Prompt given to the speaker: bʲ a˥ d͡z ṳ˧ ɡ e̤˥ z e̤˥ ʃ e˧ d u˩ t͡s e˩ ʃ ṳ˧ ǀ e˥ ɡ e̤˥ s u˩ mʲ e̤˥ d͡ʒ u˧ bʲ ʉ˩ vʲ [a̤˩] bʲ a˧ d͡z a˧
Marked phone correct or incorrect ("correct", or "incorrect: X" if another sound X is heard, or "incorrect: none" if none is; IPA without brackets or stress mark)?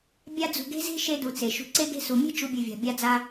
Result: correct